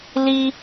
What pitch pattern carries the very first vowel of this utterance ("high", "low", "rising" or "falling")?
high